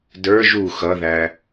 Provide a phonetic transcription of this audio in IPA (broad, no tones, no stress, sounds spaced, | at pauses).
d ə˞ ʒ u x ʌ ð æ